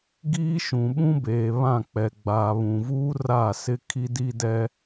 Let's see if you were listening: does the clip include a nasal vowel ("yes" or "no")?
yes